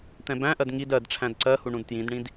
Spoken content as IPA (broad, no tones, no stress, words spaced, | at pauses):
t̪ɛ̃bæ̃ʔɜd ŋid ɜd ʈ͡ʂʰæ̃dǀɜhu ɳũdtjĩdɳĩd